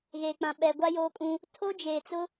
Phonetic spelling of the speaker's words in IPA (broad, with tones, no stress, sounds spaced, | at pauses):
ɣ e˨ k͡p ã˨ ɓ ɛ˨ ɡʷ a˦ j oː˦ kʼ ũ˦ | tʰ o˦ d͡ʒ eː˨ t͡s ʊ˦